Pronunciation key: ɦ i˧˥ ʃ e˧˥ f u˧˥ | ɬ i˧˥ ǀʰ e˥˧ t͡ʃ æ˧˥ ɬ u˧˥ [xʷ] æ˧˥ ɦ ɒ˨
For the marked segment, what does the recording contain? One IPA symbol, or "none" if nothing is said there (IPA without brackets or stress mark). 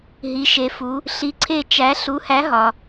h